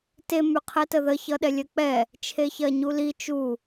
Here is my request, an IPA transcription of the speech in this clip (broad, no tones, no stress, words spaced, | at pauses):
te myqʰɛtəðə çʌɗɛlʲɜk͡pɛ | t͡ʃʰeçɜɲuli t͡ʃu